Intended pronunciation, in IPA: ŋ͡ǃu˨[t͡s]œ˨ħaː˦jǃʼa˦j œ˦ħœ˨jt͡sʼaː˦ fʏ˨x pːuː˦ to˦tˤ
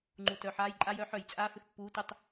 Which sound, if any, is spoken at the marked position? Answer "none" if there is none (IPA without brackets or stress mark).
t